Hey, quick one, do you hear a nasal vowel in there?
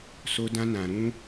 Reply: yes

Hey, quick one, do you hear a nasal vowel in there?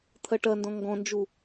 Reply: yes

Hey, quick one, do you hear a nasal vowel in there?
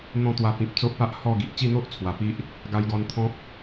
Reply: yes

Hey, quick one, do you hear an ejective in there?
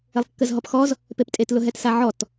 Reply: yes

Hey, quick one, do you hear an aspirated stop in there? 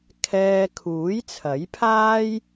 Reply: yes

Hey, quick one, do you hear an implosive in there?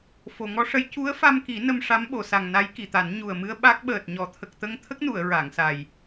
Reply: yes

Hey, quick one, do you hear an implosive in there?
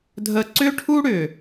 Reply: no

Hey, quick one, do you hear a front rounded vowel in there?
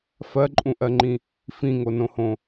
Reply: no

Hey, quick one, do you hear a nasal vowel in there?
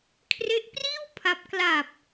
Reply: no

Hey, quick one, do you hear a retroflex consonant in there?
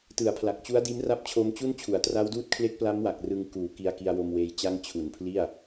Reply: no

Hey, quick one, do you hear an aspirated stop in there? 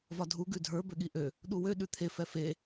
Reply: yes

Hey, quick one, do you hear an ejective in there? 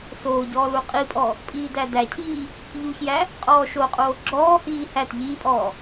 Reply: yes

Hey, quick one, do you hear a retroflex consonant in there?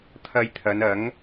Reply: no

